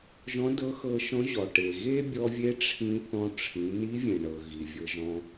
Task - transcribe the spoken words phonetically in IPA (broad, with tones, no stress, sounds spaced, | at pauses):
ʒ ɔ̃˧˥ d ɤ˧˥ x ɤ˧ ʃ ɔ̃˧˥ ʑ ɔ˩ ʈ e˩ ɣ e˥ bʲ ɔ˧ vʲ e˧˥ ʈ͡ʂʰ ĩ˧ θ ɔ̃˧ ʈ͡ʂʰ ĩ˩˧ n i˧˥ vʲ ẽ˩ ɳ ɤ˩ ɣ i˩ vʲ ɤ˧ ʒ ɔ̃˧